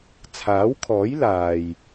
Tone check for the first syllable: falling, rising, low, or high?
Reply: rising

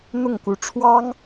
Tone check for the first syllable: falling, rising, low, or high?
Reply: falling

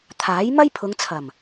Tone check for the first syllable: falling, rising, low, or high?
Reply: rising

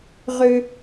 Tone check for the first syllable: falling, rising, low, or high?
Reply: low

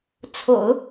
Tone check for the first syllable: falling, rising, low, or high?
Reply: low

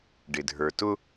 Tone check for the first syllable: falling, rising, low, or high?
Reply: low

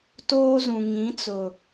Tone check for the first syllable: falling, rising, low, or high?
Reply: high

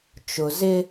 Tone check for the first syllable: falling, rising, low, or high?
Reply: low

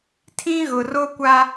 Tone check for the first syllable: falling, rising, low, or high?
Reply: high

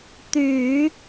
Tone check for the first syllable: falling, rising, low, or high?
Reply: low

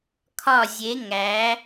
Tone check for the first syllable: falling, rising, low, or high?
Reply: falling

